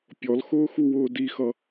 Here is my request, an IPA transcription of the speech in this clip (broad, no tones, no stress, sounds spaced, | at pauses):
pʲ ɔ l x ʊː x u w ʊː d i x ʌ